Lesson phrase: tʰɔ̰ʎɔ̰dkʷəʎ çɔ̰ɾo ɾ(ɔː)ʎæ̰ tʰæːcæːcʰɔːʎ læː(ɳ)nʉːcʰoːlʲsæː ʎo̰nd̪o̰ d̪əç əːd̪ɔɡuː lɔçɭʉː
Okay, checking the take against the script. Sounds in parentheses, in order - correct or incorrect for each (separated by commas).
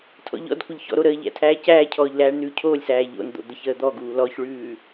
incorrect, correct